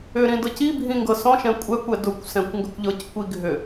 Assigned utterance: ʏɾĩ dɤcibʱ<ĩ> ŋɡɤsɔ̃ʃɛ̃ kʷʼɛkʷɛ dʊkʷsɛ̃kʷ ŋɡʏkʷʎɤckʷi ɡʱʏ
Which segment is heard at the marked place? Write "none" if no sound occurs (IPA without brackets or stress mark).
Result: ĩ